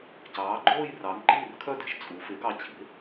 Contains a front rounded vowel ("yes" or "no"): yes